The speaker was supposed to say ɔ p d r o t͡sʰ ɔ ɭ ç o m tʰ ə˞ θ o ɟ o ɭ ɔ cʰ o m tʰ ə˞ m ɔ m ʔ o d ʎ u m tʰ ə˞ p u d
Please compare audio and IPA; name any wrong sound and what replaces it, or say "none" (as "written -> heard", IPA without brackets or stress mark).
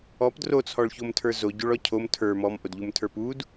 θ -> z